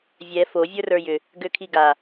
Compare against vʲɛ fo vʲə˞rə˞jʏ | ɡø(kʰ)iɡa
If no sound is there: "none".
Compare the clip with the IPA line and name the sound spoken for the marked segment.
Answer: kʰ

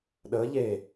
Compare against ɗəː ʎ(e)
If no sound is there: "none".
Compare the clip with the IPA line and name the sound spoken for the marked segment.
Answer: e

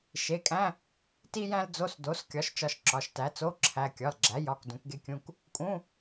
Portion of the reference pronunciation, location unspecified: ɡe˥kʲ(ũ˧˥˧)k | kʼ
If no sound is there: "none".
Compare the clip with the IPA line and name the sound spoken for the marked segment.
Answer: ũ˧˥˧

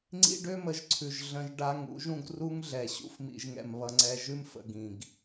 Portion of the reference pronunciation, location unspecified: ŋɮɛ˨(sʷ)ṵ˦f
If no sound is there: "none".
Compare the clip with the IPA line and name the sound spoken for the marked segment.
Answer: ɕ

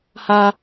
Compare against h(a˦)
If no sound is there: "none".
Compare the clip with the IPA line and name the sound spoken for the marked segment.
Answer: a˦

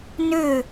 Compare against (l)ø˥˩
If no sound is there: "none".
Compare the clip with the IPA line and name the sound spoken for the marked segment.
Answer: n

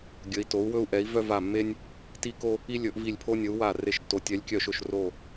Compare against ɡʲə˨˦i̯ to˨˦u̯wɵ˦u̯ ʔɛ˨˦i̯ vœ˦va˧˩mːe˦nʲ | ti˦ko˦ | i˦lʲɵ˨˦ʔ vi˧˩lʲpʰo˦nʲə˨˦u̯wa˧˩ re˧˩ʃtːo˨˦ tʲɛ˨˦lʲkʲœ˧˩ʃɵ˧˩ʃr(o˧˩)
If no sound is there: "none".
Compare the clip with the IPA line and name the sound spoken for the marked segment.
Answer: o˧˩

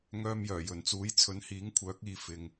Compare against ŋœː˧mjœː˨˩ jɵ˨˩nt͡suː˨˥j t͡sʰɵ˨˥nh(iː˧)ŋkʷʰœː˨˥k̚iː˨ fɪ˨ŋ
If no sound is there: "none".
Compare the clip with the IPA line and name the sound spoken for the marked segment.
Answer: iː˨˥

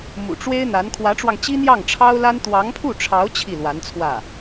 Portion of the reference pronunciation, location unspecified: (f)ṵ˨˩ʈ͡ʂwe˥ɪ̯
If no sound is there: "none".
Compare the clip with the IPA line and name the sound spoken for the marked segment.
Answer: m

